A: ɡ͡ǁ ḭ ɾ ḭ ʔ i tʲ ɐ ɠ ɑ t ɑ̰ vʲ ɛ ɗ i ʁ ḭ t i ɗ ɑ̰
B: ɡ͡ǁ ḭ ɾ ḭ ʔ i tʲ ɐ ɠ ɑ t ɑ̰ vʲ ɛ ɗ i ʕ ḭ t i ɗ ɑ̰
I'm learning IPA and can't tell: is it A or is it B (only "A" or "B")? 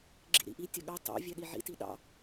B